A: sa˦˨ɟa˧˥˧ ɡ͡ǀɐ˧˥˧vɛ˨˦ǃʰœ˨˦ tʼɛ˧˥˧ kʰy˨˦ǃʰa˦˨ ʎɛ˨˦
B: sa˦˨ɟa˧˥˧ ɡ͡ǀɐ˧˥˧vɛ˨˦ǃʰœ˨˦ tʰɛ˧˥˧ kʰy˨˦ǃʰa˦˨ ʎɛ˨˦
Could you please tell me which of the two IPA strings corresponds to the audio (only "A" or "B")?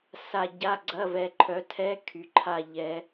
B